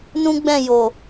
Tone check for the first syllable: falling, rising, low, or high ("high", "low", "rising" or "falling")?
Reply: high